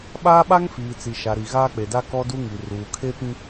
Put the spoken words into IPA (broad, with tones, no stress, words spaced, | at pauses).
ɓaː˦ɓa˦ŋfiː˨t͡si˨ ʃa˨ɾi˨ ɣaː˦k͡pe˨da˦ kɔ˦du˦ ŋi˨ ruː˨kʰe˦pĩ˦